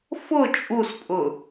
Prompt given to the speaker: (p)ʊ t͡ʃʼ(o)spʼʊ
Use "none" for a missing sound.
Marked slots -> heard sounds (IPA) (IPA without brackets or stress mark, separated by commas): f, u